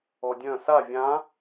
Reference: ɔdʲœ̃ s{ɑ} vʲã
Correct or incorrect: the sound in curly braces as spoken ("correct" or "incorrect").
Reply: incorrect